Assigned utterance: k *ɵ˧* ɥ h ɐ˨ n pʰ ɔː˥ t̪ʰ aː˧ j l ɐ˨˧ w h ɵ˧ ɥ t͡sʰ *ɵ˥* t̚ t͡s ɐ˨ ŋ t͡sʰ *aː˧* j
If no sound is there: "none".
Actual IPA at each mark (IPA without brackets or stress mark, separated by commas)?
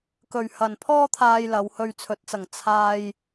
ɵ˨, ɵ˨˥, aː˧